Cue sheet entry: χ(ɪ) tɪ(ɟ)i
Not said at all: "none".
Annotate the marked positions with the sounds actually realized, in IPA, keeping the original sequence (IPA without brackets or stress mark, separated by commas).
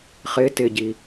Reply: ɪ, ɟ